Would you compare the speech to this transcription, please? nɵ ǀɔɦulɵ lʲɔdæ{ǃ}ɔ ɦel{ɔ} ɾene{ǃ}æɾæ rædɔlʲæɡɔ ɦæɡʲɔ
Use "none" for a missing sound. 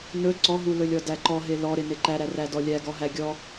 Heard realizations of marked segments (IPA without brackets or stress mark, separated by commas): ǃ, ɔ, ǃ